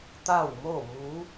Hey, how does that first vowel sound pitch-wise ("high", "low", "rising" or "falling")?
falling